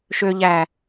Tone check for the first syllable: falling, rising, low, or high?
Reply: low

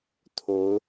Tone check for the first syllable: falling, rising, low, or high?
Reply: rising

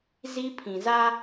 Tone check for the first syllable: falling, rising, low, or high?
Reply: high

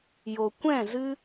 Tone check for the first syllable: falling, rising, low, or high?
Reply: low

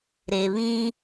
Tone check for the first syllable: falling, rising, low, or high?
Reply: low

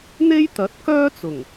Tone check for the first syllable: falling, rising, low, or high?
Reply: high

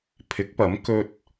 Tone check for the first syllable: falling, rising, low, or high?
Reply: rising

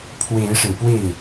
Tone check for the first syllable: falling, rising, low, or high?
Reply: rising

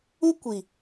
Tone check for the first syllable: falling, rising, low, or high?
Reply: high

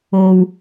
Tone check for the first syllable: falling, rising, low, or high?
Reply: high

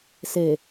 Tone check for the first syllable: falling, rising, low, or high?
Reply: low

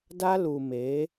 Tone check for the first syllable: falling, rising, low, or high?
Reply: high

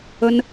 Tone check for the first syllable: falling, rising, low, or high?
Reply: high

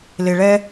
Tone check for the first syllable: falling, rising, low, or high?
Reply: low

